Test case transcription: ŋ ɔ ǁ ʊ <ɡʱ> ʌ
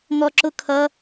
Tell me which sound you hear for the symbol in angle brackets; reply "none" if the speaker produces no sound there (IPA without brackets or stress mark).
kʰ